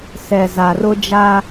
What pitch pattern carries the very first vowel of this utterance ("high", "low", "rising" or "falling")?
low